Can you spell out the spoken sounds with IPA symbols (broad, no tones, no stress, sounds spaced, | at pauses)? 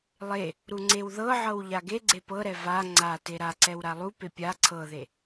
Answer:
lˠ e | ɾ u ŋ͡ǀ e w ð ɤ ʕ ɤ w ʎ a ɡ e ɡ͡ǀ e p ɤ ɾ ɛ v a ŋ͡ǀ a t e ɾ a ǀ ɛ w ɾ a lˠ u p e pʲ a ǀʰ ɤ ð e